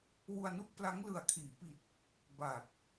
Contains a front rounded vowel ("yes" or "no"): no